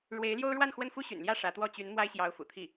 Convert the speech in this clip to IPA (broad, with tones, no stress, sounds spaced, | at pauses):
ɻ w e˧˥ ɪ̯ l j o˥ ʊ̯ ɻ w a˥˧ n x w ə˥˩ n f u˥ ɕ y̰˨˩ n l j ä˥˩ ʂ ä˧˥ t̪ w ɔ˥˩ t͡ɕ y˧˥ n m w a˥ ɪ̯ ɕ j ɑ˧˥ ʊ̯ f ṵ˨˩ t̪ʰ i˥˩